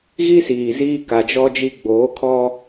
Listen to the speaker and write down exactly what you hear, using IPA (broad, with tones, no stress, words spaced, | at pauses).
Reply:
ɣi˦siː˨ ziː˦ka˨d͡ʒɔ˦d͡ʒi˦ ɡ͡boː˨˦kʰɔ˦